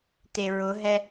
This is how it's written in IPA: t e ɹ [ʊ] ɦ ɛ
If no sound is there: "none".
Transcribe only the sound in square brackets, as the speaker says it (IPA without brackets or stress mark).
ʊ